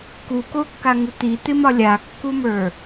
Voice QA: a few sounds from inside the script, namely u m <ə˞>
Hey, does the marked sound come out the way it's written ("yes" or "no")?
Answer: yes